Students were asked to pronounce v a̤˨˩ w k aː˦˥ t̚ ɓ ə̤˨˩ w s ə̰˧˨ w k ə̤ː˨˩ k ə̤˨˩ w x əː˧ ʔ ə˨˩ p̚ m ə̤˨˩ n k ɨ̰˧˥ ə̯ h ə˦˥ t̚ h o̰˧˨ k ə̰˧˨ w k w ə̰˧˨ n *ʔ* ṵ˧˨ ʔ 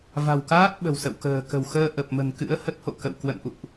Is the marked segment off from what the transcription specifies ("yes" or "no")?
no